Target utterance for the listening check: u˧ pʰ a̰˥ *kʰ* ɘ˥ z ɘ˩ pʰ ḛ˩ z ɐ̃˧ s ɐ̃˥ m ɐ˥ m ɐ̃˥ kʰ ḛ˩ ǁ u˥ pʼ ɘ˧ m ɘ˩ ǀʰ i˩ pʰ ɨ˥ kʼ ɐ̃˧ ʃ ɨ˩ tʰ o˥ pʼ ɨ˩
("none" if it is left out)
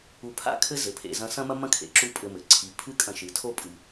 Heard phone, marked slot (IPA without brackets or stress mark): kʰ